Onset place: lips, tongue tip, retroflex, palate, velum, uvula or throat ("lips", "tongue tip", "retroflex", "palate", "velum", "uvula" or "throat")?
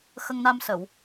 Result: velum